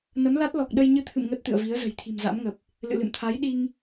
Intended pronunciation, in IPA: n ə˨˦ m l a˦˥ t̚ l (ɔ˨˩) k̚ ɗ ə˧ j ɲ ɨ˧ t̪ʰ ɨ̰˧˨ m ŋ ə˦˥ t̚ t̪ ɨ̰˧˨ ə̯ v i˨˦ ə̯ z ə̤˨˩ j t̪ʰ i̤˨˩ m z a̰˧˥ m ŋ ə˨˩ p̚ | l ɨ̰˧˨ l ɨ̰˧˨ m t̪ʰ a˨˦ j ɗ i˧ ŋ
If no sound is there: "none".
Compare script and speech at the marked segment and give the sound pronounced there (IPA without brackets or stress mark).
ɔ˨˩